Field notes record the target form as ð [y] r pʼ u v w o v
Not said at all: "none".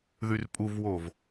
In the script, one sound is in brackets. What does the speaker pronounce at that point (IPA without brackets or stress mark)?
y